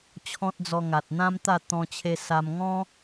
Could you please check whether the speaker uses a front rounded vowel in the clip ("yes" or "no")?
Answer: no